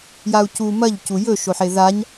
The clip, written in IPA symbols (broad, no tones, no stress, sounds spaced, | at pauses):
j a u̯ c u m ɐ ʎ c u j ɵ ʃ o ħ e ð a ɲ